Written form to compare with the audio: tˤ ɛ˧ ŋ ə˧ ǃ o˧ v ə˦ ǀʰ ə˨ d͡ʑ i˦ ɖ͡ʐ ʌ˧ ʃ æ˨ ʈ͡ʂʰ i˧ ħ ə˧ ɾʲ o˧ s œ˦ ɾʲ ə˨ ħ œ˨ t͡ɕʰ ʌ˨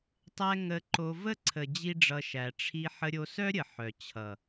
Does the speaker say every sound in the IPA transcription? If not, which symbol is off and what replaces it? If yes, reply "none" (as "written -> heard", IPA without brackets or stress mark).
none